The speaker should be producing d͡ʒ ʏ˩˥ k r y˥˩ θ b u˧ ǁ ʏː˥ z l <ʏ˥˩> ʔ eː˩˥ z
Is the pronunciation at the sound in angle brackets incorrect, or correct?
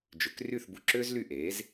incorrect